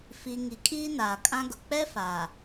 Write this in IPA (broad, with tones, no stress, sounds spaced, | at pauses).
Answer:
f i˨ ŋ i˨ kʼ iː˦ n aː˨ kʼ ã˦ ɡ ʊ˨ k͡p ɛ˦ f aː˨